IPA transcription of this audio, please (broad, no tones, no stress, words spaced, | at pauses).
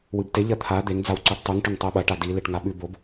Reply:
wɨbte ʎɐt̪ʰa d̪eŋ d͡zawǀoʈtˤʉŋ ʈɵŋtˤʉɓɐ ʈadi leʈŋaɓʉ bob